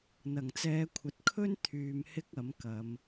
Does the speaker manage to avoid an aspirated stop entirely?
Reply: no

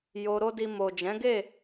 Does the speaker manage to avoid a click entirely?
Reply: yes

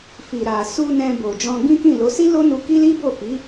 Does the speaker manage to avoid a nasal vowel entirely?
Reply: no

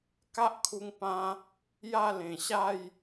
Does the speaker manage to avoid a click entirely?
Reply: yes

